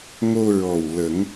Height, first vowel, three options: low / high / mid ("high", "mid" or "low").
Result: mid